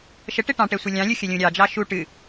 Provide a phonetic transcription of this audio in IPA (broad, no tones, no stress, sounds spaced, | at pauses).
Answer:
ʃ ə ʈ e ʈ ɑ̃ ʈ ɛ sʷ ɨ lʲ ɑ̃ lʲ u xʲ ə lʲ ũ ɾʲ ɑ d͡ʒ ɑ ʃ u ʈ ɨ